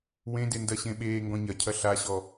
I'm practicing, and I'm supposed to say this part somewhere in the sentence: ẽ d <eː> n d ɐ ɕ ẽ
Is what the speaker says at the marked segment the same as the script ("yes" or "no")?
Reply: no